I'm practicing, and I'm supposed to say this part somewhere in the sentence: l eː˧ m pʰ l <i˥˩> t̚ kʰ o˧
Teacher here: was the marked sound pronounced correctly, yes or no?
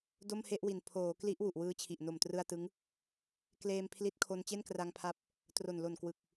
no